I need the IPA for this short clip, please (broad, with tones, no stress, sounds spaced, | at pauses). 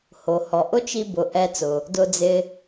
h o˩ h ɔ˩ ʔ ʊ˥ t͡ʃ i˧ b ʊ˩ ʔ ɛ˧ t͡s ʊ˩ | d ʊ˧ d͡z ɪ˧